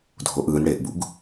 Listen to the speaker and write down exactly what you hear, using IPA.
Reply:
dʱ o ʔ ɯː n ɽ eː ʔ b ṵ ɡ

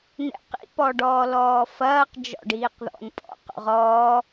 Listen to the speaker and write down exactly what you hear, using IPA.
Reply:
n ɛ̰ q ḭ p ɔ ɖ ɔː l ɔː f ɐː q d͡ʒ ɔ̰ ɖ iː q ð ɔ̰ n pʼ ɔ̰ q o̰ ʁ ɔː

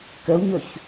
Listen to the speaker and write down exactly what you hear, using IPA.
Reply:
k ə u̯ ɲ ɵ ç

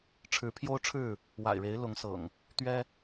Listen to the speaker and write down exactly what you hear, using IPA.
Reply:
ʈ͡ʂʰ ɻ̩˨˦ pʰ j o˦ ʊ̯ ʈ͡ʂʰ ɻ̩˥˨ | w a̰˨˩ ɪ̯ ɻ e˨˦ ɪ̯ l ʊ˨˦ ŋ s ɤ̰˨˩ ŋ | t̪ ɥ ɛ˦

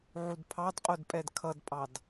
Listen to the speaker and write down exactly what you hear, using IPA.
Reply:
ʕ u d pʰ ɑ d qʼ ʊ d pʼ ɛ d kʰ ʌ d pʼ ɑ d

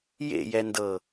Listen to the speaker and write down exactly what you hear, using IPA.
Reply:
j ḛ j ɛ n d ɤ

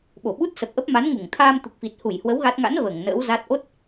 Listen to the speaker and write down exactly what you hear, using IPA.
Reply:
ɓ o˧˩ ɓ u˦˥ t̚ s ə˨˩ p̚ ʔ ə˦˥ p̚ m a˨˦ n ŋ u˧˩ ŋ t̪ʰ aː˧ m t̪ u˨˩ k̚ f i˨˩ t̚ h u˧˩ j h w ə˨˦ w ɣ a˦˥ t̚ ŋ a̰˧˥ n v əː˧˩ ŋ n ə̰ː˧˥ w z a˦˥ t̚ ʔ o˦˥ t̚

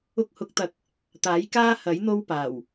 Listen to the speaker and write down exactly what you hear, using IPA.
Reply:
ʊ˧ k̚ h ʊ˨˥ k̚ t̪ ɐ˨˥ k̚ | t̪ aː˨˥ j k aː˥ h ɐ˨˥ j n̪ o˥ w p aː˨˩ w

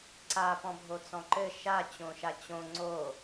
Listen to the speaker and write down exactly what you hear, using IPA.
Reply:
ǀ a p ɔ̃ bʱ o t͡s ɔ̃ ǃ ɘ ʃ a t͡ɕ õ ʃ a t͡ɕ õ ŋ͡ǀ o

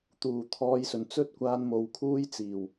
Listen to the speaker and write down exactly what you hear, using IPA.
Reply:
t̪ uː˨˩ t̪ʰ ɔː˧ j s ɵ˨˩ n t͡s ɵ˥ t̚ kʷ aː˧ n m o˨ w kʰ uː˥ j t͡s iː˨˩ w

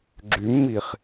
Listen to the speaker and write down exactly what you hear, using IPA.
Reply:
ɡ͡ǁ y mː i χ

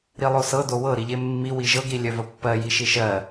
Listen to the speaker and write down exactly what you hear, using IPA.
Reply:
ɾ i lˠ o s ɤ d o w ɤ ɾ i ʎ e mː i w i ʒ ɤ ɡ ɾ i lʲ œ v ə pː ɜ j i ʃ i ʃ ɜ

